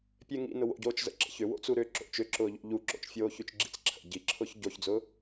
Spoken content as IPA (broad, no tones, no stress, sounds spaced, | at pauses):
pʲ e ŋ ḭ n ʊ w o̰ ɟ oː t͡ʃ z ə̰ ǁ ə̰ ç ʏ w o̰ t͡s u ɾ ʏː ǁ o̰ t͡ʃ ʏ ǁ ʊː ʎ o̰ ʎ u ǁ o̰ t͡ʃ fʲ oː ç y t͡ʃ ɡ͡ǁ ḭ t͡s ǁʰ ə̰ ɟ i ǁʰ ʊː ç ɟ o ç d͡z ʊː